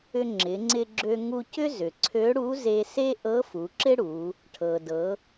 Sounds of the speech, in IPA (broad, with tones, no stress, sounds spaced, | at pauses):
ʏ˧ ŋ͡ǁ ɪ˩˧ ŋ͡ǀ ɪ˧ ɡ͡ǁ ø˧ ŋ u˧ c ʏ˥ z ʏ˩ ǀʰ ø˧˥ ɽ u˧˥ z e˧ s e˥ ʔ ɤ˧˥ f u˩˧ ǁ ɪ˥ ɽ u˩˧ | ʈʰ ɤ˩ d ɤ˩˧